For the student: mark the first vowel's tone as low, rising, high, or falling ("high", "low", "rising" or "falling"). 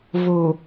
low